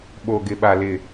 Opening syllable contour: low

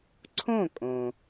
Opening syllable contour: falling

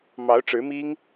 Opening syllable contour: rising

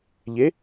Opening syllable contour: rising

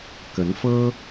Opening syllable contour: rising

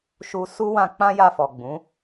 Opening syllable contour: high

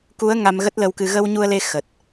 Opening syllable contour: rising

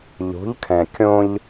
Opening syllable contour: rising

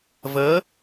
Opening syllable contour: rising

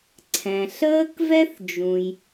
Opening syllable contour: low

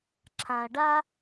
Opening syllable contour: low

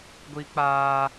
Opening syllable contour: high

